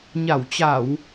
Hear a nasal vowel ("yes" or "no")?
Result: no